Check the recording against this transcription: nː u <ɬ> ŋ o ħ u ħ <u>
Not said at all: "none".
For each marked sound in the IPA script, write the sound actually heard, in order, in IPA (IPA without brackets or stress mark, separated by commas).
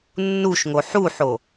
ʃ, o